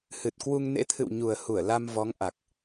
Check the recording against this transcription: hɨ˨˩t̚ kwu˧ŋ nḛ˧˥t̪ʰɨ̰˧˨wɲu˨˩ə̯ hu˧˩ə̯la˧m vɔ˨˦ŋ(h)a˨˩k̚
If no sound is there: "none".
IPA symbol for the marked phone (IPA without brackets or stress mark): ʔ